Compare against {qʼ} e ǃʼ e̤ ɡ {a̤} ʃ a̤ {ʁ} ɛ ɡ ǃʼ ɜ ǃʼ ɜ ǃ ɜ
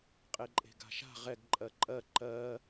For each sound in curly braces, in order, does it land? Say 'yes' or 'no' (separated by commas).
yes, yes, yes